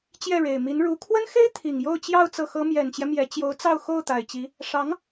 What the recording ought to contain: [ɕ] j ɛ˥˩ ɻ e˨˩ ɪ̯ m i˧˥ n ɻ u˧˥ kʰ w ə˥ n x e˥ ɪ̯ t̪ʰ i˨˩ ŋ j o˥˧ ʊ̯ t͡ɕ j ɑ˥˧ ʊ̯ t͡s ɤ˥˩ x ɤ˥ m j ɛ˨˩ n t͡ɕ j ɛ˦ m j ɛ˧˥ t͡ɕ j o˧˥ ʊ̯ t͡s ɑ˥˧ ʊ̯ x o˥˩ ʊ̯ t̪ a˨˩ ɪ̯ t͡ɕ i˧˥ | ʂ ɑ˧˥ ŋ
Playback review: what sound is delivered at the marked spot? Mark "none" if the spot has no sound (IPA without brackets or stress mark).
t͡ɕ